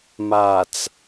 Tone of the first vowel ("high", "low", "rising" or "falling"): low